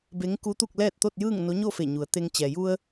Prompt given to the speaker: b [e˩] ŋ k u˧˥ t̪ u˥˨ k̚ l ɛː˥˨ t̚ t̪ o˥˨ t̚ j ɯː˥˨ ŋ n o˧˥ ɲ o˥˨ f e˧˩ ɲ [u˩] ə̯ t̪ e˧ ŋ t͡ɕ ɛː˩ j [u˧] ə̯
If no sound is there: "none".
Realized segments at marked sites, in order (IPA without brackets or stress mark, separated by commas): e˧˥, u˩˧, u˧